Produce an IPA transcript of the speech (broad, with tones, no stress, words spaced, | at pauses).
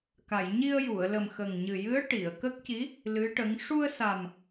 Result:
ka˨˩˨j ɲi˧ə̯ju˨˩˨ə̯ lə˨˩mxə˨˩ŋɲɨ˨˩jɨ˧˥ə̯ ʈi˨˩˨ə̯ kə˦˥k̚ ci˧˥ | lɨ˧˥ʈə˧˥ŋ ʂu˧ə̯sa˨˩m